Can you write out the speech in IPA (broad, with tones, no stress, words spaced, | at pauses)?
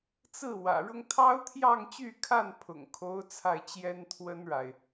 t͡sɹ̩˥˩ wä̰˨˩ɻʊ˥ŋ t̪ʰɑ˥ʊ̯t̪ʰjɑ˥˧ŋ t͡ɕy˥˧kʰa˥˩npʰʊ̰˨˩ŋkʰo˧˥ʊ̯ t͡sʰa˥˩ɪ̯t͡ɕjɛ˥n t̪ʰwə˥nɻa˨ɪ̯